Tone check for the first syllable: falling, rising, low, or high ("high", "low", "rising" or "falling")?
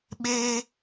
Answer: high